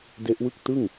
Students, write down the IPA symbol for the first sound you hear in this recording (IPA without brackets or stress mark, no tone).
d